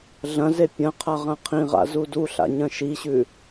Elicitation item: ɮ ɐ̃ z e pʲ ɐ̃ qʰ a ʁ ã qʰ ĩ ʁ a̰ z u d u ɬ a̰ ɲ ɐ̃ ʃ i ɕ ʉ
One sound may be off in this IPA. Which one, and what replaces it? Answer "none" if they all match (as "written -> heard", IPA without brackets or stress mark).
none